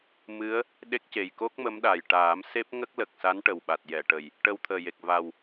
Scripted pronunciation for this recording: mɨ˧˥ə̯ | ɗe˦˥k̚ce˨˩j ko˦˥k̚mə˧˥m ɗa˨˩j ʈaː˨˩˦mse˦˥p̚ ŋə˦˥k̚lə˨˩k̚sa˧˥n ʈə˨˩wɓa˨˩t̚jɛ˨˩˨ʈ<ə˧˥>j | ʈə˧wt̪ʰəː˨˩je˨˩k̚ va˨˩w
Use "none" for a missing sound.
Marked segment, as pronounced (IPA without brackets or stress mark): ə˨˩